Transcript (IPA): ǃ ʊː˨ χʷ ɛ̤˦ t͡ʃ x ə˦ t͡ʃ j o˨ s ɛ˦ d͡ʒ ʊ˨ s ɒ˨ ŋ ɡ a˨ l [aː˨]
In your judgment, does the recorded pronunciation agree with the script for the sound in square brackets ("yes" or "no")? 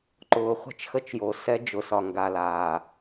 yes